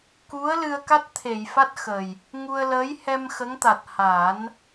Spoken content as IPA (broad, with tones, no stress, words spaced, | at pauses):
ku˧˥ə̯ lɨ˧ə̯ka˦˥t̚t̪ʰe˨˩˨jfa˦˥t̚ xə˨˩j | ŋu˧ə̯ləː˧˥j hɛ˧m xə˧˥ŋt̪a˨˩t̚ ha˨˩˦n